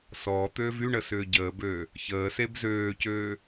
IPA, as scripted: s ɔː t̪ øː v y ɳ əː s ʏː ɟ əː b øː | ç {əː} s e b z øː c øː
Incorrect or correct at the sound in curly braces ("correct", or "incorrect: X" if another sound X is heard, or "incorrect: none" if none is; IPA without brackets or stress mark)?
correct